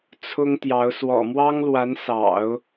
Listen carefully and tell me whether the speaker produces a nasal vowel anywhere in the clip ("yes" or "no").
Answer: no